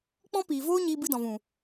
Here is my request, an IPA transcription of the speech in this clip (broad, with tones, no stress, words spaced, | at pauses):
k͡pɔ̃˦piː˨voː˦ ɲiː˧bɨ˧dɔ̃˨vũ˨